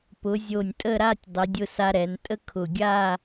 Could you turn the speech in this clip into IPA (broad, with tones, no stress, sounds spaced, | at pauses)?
p ʊ˩˧ zʲ o˧˩ nʲ tʼ ə˥˧ ɾ a˥˧ tʲ dˤ ə˩˧ dʲ ʊ˧ s a˧ ɾ ɛ˩˧ n tʼ ə˥ kʰ ʊ˧˩ ɡʲ a˥˧